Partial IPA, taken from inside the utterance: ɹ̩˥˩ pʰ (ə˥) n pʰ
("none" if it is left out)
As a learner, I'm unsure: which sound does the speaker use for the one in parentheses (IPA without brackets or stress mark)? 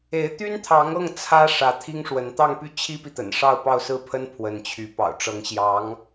ə˥